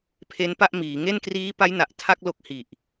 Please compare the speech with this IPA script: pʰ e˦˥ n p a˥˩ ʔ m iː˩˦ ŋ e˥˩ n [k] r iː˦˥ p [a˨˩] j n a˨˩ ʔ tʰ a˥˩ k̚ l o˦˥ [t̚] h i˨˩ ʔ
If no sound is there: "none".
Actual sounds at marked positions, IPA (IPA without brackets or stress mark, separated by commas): k, a˦˥, k̚